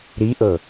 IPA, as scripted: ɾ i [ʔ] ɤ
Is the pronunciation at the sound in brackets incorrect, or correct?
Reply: correct